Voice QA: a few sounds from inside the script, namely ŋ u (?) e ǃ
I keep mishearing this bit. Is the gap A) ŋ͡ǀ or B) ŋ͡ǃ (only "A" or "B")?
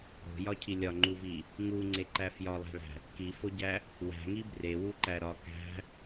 A